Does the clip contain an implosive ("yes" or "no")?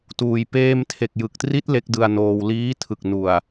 no